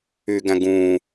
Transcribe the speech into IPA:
y ɡ æ̃ ɡ ũː

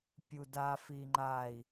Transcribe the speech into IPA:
pʲ u d a f i ŋ͡ǃ a i̯

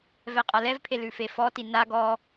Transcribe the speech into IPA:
v ɛ qʼ a l ɛ v pʰ e l ʉ f e f ɔ t i n a ɡ ɔ

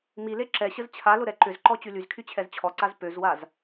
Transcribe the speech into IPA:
m i l e ǁ ɛ ɕ ə z t͡ɕʰ a l ʊ ɾ ɛ ǃ ʏ z ǃ ɔ t͡ɕ y l y z kʰ y t͡ɕʰ ɛ z t͡ɕʰ ɔ ǀ a z p ø z w a z

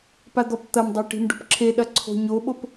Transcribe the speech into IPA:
p a d̪ ɔ p t̪ ɐ m dˤ a ʈ i̤ m ɖ o̤ p ǁʰ e ɗ ɐ ǀʰ o̤ ɲ o ɓ o p

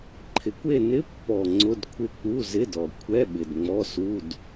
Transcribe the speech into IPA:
ǃʰ ɪ˨˩ kʷ e˦˨ n ɪ˧˥˧ pː ɔ˨˩ ŋ͡ǀ ʊ˧˥˧ d kʷʰ ɪ˦˨ k͡p u˧˥˧ z ɪ˧˥˧ d ɔ˨˩ kʷʰ ɛ˧˥˧ ɓ ɪ˨˩ d ŋ͡m ɔ˧˥˧ s u˧˥˧ d

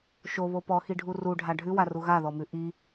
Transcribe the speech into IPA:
ʃ o β o p ɔ x i ɖʱ u r u ɖʱ a ɖʱ ʉ w a r u ɣ a ð ɔ m ʉ ʔ i

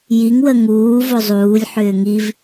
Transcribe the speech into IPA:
j i ŋ w ə ŋ uː v o zˤ uː lʲ ħ ʏː ŋ i v

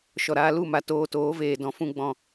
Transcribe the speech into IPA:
ʃ ɔ˨ ɾ aː˦ l u˦˨ m a˨ t oː˧ t oː˨˦ v eː˨ d ɔ̃˨ f ũ˧ ɡ͡b ɔ̃˨

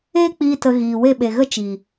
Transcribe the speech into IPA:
eː˦ k͡p iː˧ t ə˧ ɣ iː˨ w e˦˨ ɓ e˨ ɣ ə˦ t͡ʃ iː˨

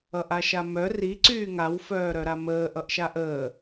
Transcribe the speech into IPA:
ʌ ʔ a ʃ a m œ r i ǀ yː ŋ a w f œː ɾ œ ɾ a m əː ʔ ʌ ʔ ʃ a ʔ əː

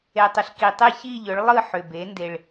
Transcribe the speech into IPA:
e˩ tˤ ʏ˩ ɬ k i˩ tˤ e˦˨ ç i˦˨ ʎ ʏ˩˧ ɭ lˠ ɯ˦˨ ħ ʏ˩ b e˩˧ n d e˩ ɭ

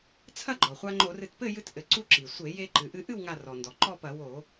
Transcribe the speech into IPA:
t͡sʰ ɐ˥˨ ɡ͡ǃ ɔ˩ χʷ a˧ ŋ͡ǃ o˧˩˧ r ɨ˧˩ t p ɘ˥˨ j ɨ˧ t ʔ ɘ˩ ǀ u˧˩ ǁ i˩ sʷ e˧˩˧ j e˧ ǃ ɨ˩ ʔ ɨ˧ ʔ ɨ˥˨ w ŋ a˧˩ r ɔ˩ n d ɔ˩ ǃ ɔ˥˨ p ɐ˧˩˧ w o˧˩˧

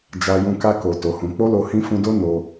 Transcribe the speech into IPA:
d͡ʒ a˧ j ũ˧ k a˧ k o˨ t o˨˦ h ũ˧ k͡p o˦ l o˧ h ĩ˦ f ũ˧ d o˦ n o˧

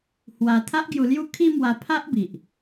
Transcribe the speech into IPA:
h w a˧ t̪ʰ a˦ ʔ ɡ j u˧ l j u˦ kʰ i˦ m w a˧ pʰ a˦ ʔ b i˨ ʔ

